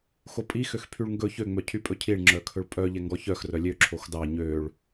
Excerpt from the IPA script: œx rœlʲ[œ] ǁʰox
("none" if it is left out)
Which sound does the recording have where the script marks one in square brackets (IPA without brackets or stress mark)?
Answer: ø